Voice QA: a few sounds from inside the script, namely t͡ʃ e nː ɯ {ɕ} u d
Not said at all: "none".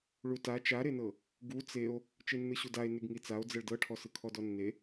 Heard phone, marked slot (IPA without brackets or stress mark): ɕ